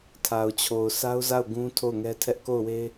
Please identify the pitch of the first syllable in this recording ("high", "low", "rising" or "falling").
low